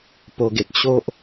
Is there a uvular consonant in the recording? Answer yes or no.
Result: no